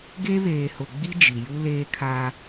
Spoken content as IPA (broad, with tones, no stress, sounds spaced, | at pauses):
ɡ e˦ β eː˨ h ʊ˨ ɡ͡b i˦ d͡ʒ i˨ j u˦ l eː˦ kʰ a˦